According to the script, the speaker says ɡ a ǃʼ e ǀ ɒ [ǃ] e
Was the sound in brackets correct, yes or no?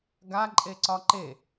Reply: yes